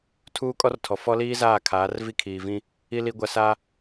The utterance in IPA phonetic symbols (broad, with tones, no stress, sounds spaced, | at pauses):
tʰ uː˦ kʼ ɔ˦ r tʰ ɔ˨ f ɔ˦ l iː˦ z aː˦˨ kʰ aː˨˦ r v i˦ kʰ iː˨ v ĩ˦ | i˨ l i˨ ɡʷ a˨ s a˦